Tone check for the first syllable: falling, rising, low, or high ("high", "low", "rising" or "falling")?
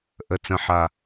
low